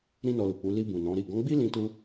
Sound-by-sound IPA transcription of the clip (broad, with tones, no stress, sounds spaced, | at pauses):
ɾ ĩ˦ n ɔ˧ l u˨ k͡p u˨˦ l i˧ b ũ˨ n ɔ̃˨˦ ɾ i˦˨ ɡ ɔ̃˨˦ ɡ͡b i˦ l ĩ˧ t u˧